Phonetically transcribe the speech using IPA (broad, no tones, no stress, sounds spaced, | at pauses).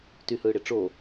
t y h ɯː ɽ e ʈ͡ʂ o